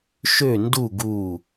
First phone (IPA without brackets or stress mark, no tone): ʃ